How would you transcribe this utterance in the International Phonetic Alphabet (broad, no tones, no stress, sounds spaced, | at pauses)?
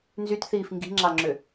n z y t θ iː f ŋ ɡ i̤ ŋ͡ǁ ɑ ŋ͡ǁ ø